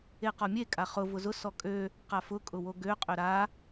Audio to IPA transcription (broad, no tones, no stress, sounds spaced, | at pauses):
e q ɔ mʲ e kʼ a χ ʊ v ʊ z ʊ s ɔ kʼ ø | q a f ʊ kʼ ʊ w o ɡ ø qʼ ø ɾ a